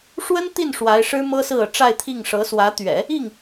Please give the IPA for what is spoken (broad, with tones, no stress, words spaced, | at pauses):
ʂwə˥nt̪i˥˩n ʂwa˧˥ɪ̯ʂɻ̩˥ mɤ˥sɹ̩˥˩ɤ˩ ʈ͡ʂa˥˧ɪ̯t̪ʰi˥˩ŋʂɤ˧˥swä˧˥ t̪ɥɛ̰˨˩˦ | i˥˩ŋ